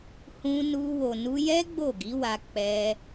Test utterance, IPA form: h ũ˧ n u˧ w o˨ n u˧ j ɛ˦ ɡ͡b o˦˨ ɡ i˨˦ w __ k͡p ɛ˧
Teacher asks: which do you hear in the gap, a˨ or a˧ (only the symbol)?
a˧